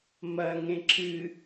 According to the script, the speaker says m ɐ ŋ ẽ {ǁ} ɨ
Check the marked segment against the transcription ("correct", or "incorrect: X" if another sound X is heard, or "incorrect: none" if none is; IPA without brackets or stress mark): correct